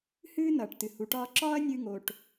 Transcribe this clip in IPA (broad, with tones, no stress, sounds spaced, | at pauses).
h ɨː˥ n ʌː˩ ʈ t ɨ˩ h u˩ ʈ ɒː˧ ǁ ɒː˥ ɐ̯ nʲ ɨː˧ ŋ o˩ ʈ